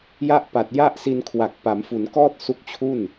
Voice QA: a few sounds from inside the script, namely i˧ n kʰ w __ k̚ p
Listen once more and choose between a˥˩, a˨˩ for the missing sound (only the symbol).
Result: a˨˩